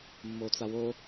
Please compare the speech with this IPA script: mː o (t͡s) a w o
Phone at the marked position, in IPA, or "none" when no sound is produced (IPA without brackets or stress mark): t͡s